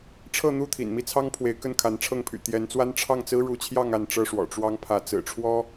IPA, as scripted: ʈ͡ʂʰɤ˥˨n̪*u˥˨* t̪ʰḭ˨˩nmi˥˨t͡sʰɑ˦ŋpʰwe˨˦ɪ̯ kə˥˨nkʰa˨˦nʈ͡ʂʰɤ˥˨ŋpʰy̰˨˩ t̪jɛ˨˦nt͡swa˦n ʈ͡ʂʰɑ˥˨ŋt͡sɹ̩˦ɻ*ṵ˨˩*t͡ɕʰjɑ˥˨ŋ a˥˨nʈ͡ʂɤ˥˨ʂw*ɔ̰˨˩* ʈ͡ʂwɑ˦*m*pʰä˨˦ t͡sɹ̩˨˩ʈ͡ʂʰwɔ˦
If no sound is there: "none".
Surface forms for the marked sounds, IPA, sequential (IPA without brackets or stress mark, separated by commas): u˥˨, u˨˦, ɔ̰˨˩, ŋ